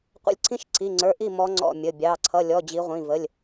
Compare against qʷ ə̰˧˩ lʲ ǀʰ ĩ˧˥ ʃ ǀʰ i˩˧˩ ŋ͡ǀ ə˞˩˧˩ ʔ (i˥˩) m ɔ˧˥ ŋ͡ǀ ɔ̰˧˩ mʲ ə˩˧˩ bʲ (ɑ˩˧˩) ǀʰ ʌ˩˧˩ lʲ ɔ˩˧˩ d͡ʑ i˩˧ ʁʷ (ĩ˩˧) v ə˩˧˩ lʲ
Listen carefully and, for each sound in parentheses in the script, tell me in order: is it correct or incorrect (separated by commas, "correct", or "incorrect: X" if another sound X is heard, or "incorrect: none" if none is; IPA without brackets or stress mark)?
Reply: correct, correct, incorrect: ĩ˩˧˩